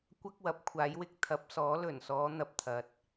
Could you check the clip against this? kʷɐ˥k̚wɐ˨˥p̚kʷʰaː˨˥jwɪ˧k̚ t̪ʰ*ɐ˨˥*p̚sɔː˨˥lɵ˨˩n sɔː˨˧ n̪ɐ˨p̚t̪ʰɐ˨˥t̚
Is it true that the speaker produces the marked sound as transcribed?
yes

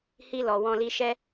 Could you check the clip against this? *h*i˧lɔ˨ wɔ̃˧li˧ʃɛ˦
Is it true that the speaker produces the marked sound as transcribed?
yes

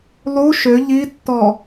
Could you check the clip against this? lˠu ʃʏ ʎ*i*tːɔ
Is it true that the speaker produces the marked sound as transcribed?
yes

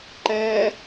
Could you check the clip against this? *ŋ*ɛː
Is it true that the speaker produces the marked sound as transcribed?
no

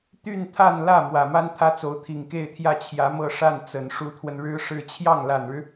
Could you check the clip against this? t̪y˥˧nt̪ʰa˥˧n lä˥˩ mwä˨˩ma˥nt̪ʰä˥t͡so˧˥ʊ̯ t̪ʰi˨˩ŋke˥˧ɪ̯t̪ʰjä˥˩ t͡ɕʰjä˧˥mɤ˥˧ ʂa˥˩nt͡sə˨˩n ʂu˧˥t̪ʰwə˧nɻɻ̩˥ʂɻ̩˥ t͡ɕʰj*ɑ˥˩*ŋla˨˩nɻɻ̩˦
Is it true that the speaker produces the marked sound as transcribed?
yes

